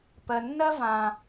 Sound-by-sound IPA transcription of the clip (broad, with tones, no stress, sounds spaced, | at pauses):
p ɜ˩ nː ɜ˥ v ã˩